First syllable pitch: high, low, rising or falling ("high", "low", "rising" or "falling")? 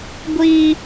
high